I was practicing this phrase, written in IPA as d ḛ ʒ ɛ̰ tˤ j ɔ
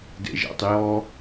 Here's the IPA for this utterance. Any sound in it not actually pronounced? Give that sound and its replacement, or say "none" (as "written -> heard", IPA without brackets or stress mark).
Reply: none